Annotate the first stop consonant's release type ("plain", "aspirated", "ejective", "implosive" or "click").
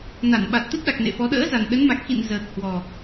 implosive